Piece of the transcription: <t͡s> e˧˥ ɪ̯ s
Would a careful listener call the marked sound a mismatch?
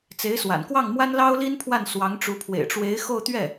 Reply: no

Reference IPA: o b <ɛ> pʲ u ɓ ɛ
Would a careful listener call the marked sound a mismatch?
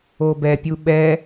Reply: no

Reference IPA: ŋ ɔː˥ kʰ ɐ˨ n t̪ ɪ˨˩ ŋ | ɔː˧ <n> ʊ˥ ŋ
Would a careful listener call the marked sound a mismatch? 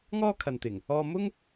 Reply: yes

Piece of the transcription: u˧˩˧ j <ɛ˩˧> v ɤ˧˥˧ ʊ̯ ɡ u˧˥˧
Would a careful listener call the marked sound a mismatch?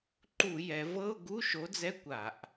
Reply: no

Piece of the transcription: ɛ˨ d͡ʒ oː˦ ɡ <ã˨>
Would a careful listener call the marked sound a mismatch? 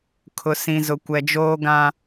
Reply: yes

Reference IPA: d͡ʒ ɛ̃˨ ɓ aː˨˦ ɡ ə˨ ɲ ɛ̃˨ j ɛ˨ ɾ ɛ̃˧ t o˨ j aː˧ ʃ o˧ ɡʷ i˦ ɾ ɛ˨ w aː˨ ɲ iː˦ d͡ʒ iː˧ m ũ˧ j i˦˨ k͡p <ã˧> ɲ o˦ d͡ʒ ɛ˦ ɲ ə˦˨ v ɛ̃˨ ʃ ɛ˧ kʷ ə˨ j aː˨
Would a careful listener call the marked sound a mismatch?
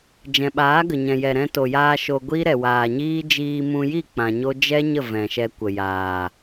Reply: no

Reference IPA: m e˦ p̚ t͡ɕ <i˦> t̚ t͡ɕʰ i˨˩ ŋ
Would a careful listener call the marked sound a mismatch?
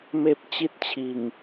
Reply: no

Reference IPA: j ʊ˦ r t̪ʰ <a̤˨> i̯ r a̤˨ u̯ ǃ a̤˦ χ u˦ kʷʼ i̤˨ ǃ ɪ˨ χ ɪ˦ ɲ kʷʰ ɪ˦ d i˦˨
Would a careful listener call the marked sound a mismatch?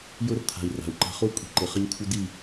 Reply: no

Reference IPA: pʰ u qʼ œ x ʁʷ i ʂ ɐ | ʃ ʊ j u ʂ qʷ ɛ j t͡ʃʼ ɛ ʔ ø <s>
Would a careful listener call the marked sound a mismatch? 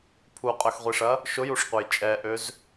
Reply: yes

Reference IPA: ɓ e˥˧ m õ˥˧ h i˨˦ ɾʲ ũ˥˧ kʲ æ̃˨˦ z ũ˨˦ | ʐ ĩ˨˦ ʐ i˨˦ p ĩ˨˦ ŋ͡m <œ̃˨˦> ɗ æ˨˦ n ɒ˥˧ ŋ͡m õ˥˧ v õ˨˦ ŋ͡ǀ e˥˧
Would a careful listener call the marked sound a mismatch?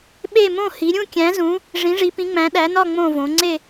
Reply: yes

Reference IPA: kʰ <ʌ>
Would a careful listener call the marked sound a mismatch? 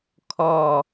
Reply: yes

